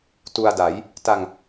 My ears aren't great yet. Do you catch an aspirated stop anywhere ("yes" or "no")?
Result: no